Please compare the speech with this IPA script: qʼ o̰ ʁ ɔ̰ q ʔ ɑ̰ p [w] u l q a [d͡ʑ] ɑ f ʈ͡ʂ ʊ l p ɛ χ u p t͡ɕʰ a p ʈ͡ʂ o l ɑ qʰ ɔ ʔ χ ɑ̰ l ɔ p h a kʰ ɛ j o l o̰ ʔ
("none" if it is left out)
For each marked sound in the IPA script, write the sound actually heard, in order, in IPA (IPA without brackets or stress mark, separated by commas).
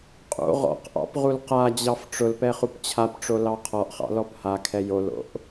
ʁ, d͡ʑ